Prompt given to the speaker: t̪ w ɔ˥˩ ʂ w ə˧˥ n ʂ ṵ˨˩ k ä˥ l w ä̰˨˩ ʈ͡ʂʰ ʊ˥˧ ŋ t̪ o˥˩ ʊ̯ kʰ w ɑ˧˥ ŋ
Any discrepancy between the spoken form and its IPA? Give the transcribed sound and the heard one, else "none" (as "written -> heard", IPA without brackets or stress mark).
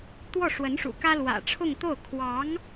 none